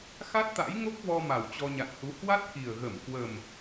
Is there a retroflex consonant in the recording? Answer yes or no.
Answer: no